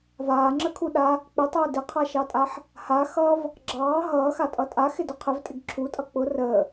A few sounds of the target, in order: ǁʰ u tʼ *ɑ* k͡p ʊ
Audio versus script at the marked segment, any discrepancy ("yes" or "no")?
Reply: yes